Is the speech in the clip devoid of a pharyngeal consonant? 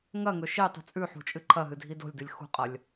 no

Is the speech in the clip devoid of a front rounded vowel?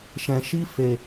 yes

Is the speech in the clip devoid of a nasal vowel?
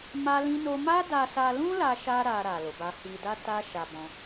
no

